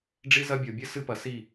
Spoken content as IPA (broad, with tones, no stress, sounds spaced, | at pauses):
ɖ͡ʐ i˦ z ɐ˦ bʲ o˨ bʲ ɨ˦ s ɨ˦ p ɐ˨ s i˦˨